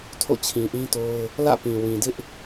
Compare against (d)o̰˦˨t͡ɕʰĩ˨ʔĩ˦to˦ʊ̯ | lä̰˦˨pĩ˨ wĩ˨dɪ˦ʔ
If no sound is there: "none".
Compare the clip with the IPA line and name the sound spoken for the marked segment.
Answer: tʰ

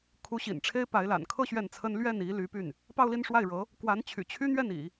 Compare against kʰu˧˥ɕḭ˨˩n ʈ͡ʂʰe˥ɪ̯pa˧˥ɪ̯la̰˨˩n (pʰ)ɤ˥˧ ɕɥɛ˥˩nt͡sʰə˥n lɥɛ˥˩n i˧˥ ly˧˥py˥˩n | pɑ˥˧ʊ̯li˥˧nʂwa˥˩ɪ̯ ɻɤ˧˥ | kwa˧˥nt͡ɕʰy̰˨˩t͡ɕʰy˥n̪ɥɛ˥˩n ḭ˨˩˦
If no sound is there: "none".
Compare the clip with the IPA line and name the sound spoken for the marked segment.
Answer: kʰ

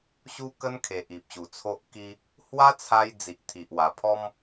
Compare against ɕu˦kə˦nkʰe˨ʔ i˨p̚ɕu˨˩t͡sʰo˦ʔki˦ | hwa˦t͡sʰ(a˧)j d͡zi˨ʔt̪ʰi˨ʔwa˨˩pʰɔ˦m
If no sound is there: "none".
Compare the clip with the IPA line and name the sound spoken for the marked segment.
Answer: a˧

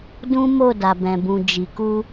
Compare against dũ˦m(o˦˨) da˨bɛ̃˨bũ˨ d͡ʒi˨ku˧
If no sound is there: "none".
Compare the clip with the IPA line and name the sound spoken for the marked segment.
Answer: o˦˨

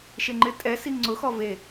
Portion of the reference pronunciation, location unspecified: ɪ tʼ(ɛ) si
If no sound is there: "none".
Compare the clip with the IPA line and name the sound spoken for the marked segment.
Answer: ɛ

